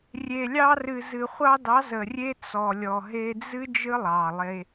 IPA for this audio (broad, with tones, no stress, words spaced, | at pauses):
rʲe˨lʲɑ˧rɨ˨ zɨ˨χʷɑ˧dɑ˨˦zə˨ rʲe˦t͡sɔ˨ lʲɔ˨ɦe˧d͡zɨ˦ d͡ʒɨ˦lˠɑ˨lˠe˧